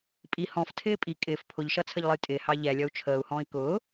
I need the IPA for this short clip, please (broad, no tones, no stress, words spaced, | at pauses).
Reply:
pʼi hɔ̃ftʰɪː pʼi kʼɪːf pʰʊʎʃʌt͡sʰəʎlˠəj tʼɪhɑ ʎɛlʲʌu̯ t͡ʃʰəːu̯hɔ̃ːi̯ kʊː